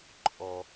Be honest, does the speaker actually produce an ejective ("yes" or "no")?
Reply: yes